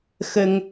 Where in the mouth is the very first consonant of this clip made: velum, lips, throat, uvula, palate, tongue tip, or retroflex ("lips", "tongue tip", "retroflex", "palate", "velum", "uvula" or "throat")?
velum